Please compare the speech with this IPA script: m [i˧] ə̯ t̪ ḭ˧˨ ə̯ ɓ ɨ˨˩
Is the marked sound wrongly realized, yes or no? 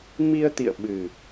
no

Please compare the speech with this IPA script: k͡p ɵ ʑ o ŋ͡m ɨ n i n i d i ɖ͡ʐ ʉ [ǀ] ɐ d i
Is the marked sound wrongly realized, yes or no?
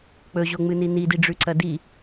no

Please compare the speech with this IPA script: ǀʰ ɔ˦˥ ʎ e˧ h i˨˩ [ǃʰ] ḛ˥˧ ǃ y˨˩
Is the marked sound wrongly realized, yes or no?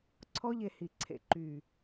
yes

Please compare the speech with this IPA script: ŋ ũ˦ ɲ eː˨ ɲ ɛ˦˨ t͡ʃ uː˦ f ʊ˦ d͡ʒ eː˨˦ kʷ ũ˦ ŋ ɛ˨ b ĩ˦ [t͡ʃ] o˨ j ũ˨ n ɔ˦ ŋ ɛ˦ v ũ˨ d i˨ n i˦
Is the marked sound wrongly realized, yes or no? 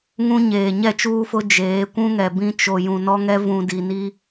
no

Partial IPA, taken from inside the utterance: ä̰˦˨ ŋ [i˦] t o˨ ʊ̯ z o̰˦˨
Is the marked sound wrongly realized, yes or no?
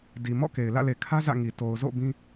yes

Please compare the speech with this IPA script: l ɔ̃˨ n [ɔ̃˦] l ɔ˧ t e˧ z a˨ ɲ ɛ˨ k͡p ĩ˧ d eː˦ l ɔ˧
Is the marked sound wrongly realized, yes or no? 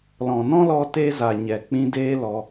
no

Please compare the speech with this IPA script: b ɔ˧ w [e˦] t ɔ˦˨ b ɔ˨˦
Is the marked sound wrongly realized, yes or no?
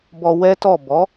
yes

